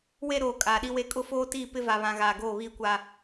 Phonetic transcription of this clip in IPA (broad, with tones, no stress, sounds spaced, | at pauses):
w e˦ ɾ oː˨ kʼ aː˨ ɗ i˦ w e˦ kʼ ʊ˦ f oː˦ t iː˦˨ p ɪ˦ v a˨ β ã˨ ɣ aː˨ ɡ oː˦˨ β iː˦ kʷ a˦